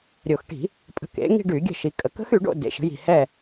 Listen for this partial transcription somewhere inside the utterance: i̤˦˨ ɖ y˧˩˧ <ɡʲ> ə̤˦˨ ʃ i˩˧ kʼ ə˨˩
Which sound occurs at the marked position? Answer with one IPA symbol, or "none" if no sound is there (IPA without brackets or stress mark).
ɡʲ